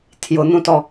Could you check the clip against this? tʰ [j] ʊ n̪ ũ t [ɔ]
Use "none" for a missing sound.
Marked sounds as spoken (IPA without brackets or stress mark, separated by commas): j, ɔ